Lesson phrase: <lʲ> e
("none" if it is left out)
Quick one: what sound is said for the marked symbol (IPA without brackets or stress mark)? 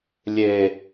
lʲ